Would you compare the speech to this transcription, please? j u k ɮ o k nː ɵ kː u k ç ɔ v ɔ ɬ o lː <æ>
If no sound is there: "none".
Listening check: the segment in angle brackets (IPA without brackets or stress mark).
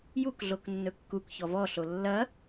ɐ